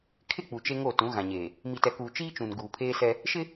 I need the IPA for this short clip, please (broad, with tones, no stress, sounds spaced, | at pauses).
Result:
kʰ ɪ˦˨ k͡p u˨ t͡ʃ e˦ ŋ o˦˨ t ũ˨˦ ɣ ã˨ ɲ eː˨ | m i˨ t ɛ˨ k uː˨ t͡ʃ iː˦ t͡ʃ ũ˨ n ɡ uː˨ pʰ eː˦ s ɛ˦ | ʃ ɪ˦